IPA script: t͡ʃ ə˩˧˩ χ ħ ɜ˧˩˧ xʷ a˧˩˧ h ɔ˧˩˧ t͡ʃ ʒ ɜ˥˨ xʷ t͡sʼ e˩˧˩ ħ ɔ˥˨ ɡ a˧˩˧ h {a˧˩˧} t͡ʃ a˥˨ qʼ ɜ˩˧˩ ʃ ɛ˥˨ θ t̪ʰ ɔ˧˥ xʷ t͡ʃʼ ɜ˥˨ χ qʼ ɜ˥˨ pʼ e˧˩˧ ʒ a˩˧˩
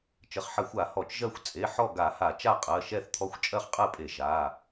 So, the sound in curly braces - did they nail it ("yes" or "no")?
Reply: yes